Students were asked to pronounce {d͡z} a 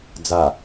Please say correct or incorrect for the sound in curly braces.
correct